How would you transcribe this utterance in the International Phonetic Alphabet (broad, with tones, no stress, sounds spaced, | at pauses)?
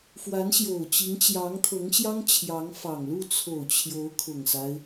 f w a˧˥ n ɕ j o˨˩ ʊ̯ t͡ɕ i˧˥ ŋ t͡ɕ j ɑ˧˥ ŋ t̪ʰ ɤ˧˥ ŋ ɕ j ɑ˥ ŋ t͡ɕʰ j ɑ˧˥ ŋ f ɑ˨˩ ŋ l u˥˩ t͡sʰ o˨˩ ʊ̯ t͡ɕʰ j o˧˥ ʊ̯ kʰ ʊ˨˩ ŋ s a˦ ɪ̯